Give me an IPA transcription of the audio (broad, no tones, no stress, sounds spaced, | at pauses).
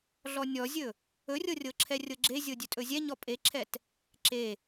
ɮ ɔ nʲ ɔ zʲ ɵ | ɵ rʲ ɤ rʲ ɤ ǁʰ ɛ rʲ ɤ ɡ͡ǁ e zʲ ɤ dʲ ɵ tʼ ɵ zʲ ɛ ɲ ɔ pʼ e ǁʰ ɛ t | ǁ e